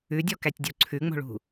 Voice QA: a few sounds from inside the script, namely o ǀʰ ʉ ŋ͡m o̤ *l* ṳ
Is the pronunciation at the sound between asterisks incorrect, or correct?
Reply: incorrect